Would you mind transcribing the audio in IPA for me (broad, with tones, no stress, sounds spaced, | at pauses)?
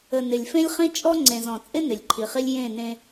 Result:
ə˨ n ɪ˨ lʲ f ẽ˦ lʲ χ ĩ˦ t͡ʃʼ ɔ˦ ŋ͡ǀ ẽ˨ z ɔ̃˨ t͡sʼ ɪ˦ n ɪ˨ lʲ ǃʰ i˨ χ i˦ lʲ j ẽ˦˨ n ẽ˦